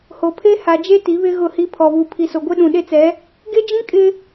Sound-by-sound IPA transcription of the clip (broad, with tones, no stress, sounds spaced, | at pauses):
h o˨ pʰ e˦ h a˨ d͡ʒ e˦ t i˨˦ β ɪ˦ ɣ ʊ˦˨ h i˦ pʰ ɔ˨ β u˨ pʰ i˨ s o˨ ɡʷ e˦ ɗ ũ˨ ɗ e˦ t͡s ɛ˨˦ | ɡ e˦ d͡ʒ ĩ˦ kʼ ɪ˦